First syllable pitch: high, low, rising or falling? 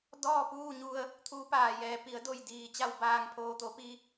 falling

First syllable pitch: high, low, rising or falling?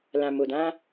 low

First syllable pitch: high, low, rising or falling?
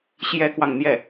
high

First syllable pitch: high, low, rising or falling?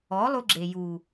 rising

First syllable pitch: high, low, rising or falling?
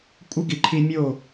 high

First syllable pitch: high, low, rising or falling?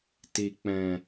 low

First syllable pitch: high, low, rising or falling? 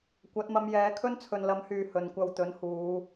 rising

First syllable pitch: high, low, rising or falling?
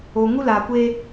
low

